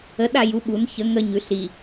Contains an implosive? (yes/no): yes